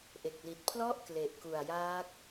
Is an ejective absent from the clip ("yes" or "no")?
yes